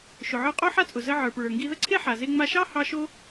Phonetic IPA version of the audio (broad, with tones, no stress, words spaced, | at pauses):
ʃʊ˩ʕə˞˧ qʼo˥ħa˥t͡sʼʊ˩ zə˧ ʕə˞˩pɹə˞˩ ŋɡi˧ðə˥ǀʰe˥ ħa˩ze˧ ŋ͡ma˧ʃɑ˥ hɑ˧ ʃo˥